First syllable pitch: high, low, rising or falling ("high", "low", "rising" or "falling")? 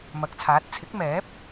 rising